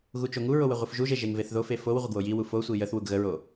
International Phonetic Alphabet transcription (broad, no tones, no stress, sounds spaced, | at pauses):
ɣ u t͡ʃ o ŋ u ɹ o w ə ʁʷ i f ʒ u ʒ e ʒ e ŋ v e θ ð o f e f o w ʁʷ ə ɡ w o j i w u f o sʷ i j ə θ w u ɡ ɣ ə ɹ o